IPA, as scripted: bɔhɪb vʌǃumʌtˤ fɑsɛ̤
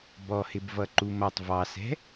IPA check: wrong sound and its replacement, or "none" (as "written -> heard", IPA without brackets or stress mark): f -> v